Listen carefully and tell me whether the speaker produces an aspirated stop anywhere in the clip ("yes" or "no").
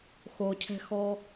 yes